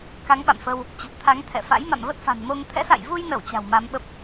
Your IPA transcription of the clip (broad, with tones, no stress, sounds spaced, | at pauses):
k a˨˦ ŋ ɓ a̰˧˨ m f ə˧ w | t͡ɕ ə˨˩ t̚ t̪ʰ a˨˦ ŋ t̪ʰ ɛ̰˧˨ f a̰˧˥ j m a̰˧˨ m v ə˦˥ t̚ f a̤˨˩ n m o˧ ŋ t̪ʰ ɛ̰˧˥ s a̰˧˨ j v u˧ j n ə˧˩ w t͡ɕ a̤˨˩ w m a˨˦ m ɓ ə˦˥ p̚